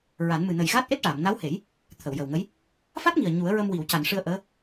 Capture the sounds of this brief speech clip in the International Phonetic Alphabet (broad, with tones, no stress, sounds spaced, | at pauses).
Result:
ɹ a˨˩˦ n m ɨ˨˩ n ə˨˩ j ɣ aː˦˥ t̚ ʔ e˦˥ t̚ ʈ aː˨˩˨ m n a˧˥ w h e˨˩˦ j | t̪ʰ ə˨˩˨ w j ə˨˩ w ŋ ə˧˥ j | f a˦˥ t̚ ŋ i˨˩ ə̯ ɲ u˨˩˦ ə̯ ɹ ə˧ m w i˨˩˨ w c a˨˩˨ n ʂ ɨ˧ ə̯ ʔ əː˧˥